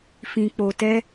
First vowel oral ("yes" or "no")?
no